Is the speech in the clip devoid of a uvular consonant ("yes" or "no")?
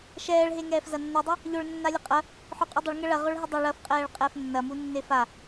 no